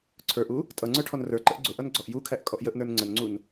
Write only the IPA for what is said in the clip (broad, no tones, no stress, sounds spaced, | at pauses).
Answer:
ǀʰ ə˞ ʔ u | tʼ ʌ ŋ͡ǀ ə˞ ʈʰ ɔ n r ə˞ ǃ ə ʔ ɡ͡ǀ ʊ ʔ ʌ n ɡ͡ǀ ɔ ʔ j u kʰ æ ʔ kʼ ɔ ʔ j ə ʔ n ə˞ n ŋ͡ǀ ə n ŋ͡ǀ u n